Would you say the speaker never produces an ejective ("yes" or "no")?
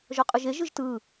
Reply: no